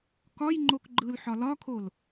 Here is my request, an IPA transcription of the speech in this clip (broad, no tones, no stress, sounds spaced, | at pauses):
k ɒ j ŋ͡ǃ o k ɡ͡ǃ ɯ l ħ ɒ l ɒ kʰ o l